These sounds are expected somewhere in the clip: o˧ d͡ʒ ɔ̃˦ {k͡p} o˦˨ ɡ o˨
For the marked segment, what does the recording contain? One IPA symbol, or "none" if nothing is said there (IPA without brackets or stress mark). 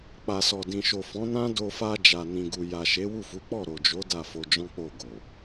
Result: k͡p